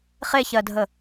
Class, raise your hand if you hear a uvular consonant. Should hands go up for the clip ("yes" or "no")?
yes